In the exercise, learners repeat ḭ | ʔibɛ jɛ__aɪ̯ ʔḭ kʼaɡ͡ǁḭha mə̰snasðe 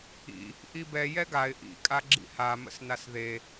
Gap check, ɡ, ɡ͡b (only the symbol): ɡ